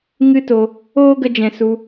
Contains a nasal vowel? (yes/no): yes